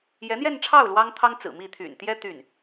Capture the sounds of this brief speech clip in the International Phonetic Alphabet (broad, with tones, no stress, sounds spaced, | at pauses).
j ɛ˧˥ n̪ j ɛ˥˧ n ʈ͡ʂʰ ɑ˥˩ ʊ̯ l w ɑ˥ ŋ t̪ʰ ɑ˥ ŋ t͡s ɹ̩˨˩ m i˥˩ t̪ʰ y̰˨˩ n t̪ j ɛ˥ t̪ y˥˩ n